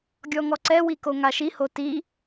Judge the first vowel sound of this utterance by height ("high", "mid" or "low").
mid